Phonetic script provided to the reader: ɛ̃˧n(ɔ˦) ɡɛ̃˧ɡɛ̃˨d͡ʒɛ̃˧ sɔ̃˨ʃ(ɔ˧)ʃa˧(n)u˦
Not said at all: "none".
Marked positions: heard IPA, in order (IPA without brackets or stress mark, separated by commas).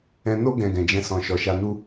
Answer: o˦, ɔ˨, n